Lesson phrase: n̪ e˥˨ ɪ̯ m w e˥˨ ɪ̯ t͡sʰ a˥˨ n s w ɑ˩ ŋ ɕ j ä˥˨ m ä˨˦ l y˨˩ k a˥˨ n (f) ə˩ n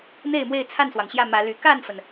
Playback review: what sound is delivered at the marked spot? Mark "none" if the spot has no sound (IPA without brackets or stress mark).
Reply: f